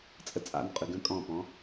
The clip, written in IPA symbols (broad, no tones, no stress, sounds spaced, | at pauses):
t͡sʼ ə t͡sʼ a̰ n qʼ ʉ ɡ ə̃ kʼ ɔ̃ p ɔ̃